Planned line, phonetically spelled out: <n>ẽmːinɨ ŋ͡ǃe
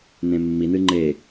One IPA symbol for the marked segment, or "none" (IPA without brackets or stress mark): n